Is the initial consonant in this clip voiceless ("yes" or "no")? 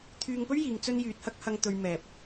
yes